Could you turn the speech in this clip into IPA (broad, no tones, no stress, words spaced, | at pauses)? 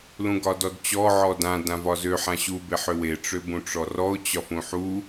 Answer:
lũɡɒdɔdt͡ɕɔ ʕɔdã dãvɒzø ħãɕu beħøwe ʈ͡ʂøbũʈ͡ʂɔrɔʊ̯ t͡ɕɒfũħu